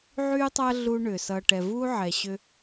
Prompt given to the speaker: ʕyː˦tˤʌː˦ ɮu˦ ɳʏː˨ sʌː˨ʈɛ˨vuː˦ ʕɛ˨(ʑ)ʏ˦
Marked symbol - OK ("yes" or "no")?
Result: no